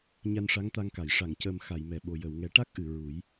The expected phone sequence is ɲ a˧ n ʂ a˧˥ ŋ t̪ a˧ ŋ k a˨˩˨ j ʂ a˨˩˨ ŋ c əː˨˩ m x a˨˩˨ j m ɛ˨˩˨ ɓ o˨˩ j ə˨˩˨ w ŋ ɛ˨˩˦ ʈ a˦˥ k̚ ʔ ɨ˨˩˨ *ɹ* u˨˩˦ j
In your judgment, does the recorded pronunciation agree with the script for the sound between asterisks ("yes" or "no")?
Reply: yes